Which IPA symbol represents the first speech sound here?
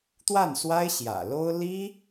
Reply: t̪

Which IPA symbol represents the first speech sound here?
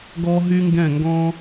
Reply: ɡ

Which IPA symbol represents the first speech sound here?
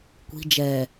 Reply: kʷ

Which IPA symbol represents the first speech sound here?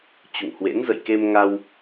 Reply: t͡ɕ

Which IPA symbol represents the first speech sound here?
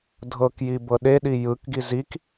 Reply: dʱ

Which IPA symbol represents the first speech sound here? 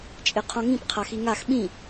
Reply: t͡ʃʼ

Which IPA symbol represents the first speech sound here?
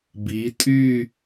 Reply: b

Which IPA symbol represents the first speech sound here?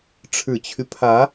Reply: ʈ͡ʂʰ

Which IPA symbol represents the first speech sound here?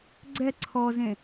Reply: ɡ͡ǀ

